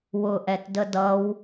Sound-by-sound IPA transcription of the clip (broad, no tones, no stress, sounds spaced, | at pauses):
w ʊ ʔ ɛ t d ə d ʌ w